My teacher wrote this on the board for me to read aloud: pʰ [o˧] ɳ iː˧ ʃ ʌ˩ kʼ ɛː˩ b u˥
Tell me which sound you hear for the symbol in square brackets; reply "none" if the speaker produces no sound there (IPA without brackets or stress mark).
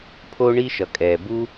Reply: o˧